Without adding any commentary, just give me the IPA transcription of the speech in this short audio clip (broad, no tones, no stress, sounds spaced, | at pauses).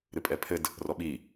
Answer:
ɾ ɨ pʼ ɛ pʰ ɘ d | r ɔ ɓ i